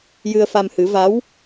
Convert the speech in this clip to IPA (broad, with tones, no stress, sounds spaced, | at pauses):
j ɨ˧ ə̯ f a˧ m h ɨ˨˩˦ v a˧˥ w